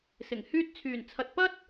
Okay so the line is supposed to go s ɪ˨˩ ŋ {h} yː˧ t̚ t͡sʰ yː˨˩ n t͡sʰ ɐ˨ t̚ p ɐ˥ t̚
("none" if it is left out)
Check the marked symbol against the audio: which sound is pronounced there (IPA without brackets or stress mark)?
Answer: h